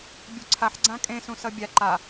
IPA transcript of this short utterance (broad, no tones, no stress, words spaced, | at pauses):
bʲuǀʰaħ ɡ͡ǀãkʼẽ sũsʌbʲa ǃa